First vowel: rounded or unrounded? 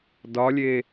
rounded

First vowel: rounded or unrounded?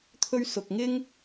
rounded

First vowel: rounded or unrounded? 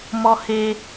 rounded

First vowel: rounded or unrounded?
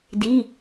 unrounded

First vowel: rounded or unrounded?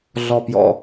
rounded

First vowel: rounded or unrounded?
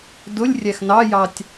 rounded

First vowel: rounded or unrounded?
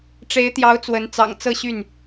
unrounded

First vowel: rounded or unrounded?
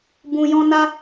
rounded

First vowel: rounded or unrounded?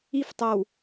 unrounded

